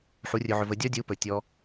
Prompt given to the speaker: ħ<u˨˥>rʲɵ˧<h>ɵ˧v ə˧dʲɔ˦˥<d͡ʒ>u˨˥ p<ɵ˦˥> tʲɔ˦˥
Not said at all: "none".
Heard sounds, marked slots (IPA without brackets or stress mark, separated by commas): u˨˥, ʕ, dʲ, ɵ˨˩